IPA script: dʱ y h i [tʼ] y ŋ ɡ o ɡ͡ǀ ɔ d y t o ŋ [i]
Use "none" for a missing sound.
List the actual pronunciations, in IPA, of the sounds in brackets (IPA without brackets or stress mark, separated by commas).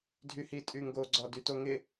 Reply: tʼ, ɪ